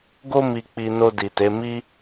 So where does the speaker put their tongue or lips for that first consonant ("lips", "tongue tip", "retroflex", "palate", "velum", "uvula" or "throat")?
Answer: velum